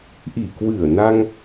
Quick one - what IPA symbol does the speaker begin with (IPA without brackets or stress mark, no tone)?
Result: ʔ